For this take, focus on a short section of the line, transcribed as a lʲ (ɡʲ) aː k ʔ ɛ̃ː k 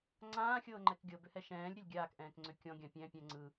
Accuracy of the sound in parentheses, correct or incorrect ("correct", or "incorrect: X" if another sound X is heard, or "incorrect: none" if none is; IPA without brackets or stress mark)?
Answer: correct